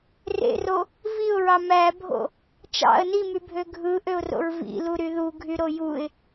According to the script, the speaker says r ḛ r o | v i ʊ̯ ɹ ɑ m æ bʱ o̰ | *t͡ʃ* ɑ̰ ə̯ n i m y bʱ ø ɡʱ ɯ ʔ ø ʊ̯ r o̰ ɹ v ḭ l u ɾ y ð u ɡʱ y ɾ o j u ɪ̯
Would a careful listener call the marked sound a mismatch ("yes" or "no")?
no